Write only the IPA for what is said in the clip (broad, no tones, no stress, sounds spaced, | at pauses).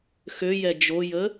x ø j ɛ d͡ʒ o j ə